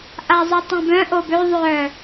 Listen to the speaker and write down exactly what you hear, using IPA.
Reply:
ʔ a zˤ œ tˤ ɛ̃ b œ̃ ʔ o b ø ðˤ œ

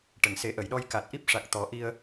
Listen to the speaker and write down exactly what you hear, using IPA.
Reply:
ʈ ə˨˩˨ ŋ s e˨˩˦ ʔ ə˨˩˨ j ɗ ɔ˧ j k a˨˩ t̚ ʔ i˦˥ p̚ ʂ a˨˩ k̚ t̪ ɔ˨˩˦ ʔ i˧ ə̯

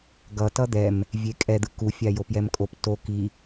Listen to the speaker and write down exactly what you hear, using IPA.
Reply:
ɡ ʌ t ʌ d̪ ɛ m | vʲ e kʼ ɛ d̪ ɯ k u fʲ a j o p j ɛ m kʼ o p t o k i

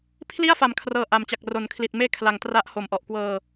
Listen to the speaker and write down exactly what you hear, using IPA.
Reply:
pʰ l i˥˩ a̯ f a˩˦ m kʰ r ɤː˧ ʔ a˨˩ m t͡ɕ a˨˩ k̚ r o˩˦ n kʰ l i˨˩ t̚ m eː˥˩ kʰ l a˨˩ ŋ t r a˦˥ ʔ h o˨˩ m ʔ ɔ˨˩ ʔ k w ɤː˧

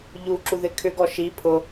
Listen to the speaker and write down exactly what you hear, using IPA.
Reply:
ʎ u ǁ u ð ɪ kʰ ʏ ɡ ɔ ʃ i pʰ ʊ

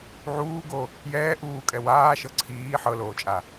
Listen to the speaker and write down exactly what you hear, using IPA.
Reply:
ʕ uː ɡ o | j ɛː ʔ uː kʼ ɛ w aː ʃ ɤ ǀʰ iː ħ ɤ l oː t͡ʃʼ a

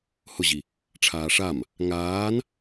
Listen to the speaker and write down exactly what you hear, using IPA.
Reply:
h ʊ ʑ i | ʈ͡ʂʰ aː ʂ a m | ŋ aː n

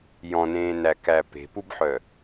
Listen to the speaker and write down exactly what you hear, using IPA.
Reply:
j ɔ̃ n ẽː n æ k æ p e̤ p u b ħ œ

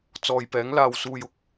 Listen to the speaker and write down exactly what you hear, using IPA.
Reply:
t͡s ɔː˨ j p ɛː˨˥ ŋ l aː˨ w s uː˨ j ʊ˨ k̚

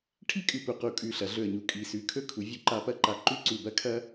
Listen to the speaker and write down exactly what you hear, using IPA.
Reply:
ʈʰ i˥ kʼ ʉ˧˩ p u˧˩ q u˧˩ kʼ ʉ˧˩ ɬ ɐ˩˧ ɮ ɵ˧˩ ə̯ ɲ u˧˩ kʼ i˧˩ s ʉ˧˩ kʰ ɵ˥˧ kʰ u˩˧ vʲ u˧ ǃ a˧ p ɐ˥˧ ǃ a˧˩ ǃ ʉ˥˧ ǀ u˧˩ b ɐ˥ kʰ ɐ˥

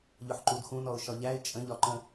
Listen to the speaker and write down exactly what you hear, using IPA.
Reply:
ʎ ʊ ħ ǃ u d x ũ n ɔ ʊ̯ ʃ ɒ ʎ æ ɪ̯ t͡ʃʼ ə̃ ʎ ɒ ǃ ə̃

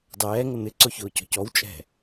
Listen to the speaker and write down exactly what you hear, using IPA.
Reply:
dˤ ɛː ŋ ə n̪ ɪ ǀ ʊ ç ʊː c ɔ̤ c ɔ w t͡ʃʼ ɛ̤

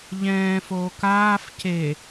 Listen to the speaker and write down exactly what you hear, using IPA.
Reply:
ʎ ɛ̃ː f oː k aː f c e

